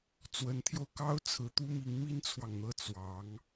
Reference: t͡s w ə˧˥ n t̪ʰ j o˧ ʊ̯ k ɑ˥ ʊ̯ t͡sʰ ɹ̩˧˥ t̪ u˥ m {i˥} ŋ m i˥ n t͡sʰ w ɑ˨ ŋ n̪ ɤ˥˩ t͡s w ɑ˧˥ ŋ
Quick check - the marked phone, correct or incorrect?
incorrect